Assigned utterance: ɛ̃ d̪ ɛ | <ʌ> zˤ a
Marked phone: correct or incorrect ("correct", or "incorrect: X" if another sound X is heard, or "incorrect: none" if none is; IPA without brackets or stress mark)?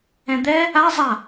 incorrect: a